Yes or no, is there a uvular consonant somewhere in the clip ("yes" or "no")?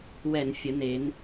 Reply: no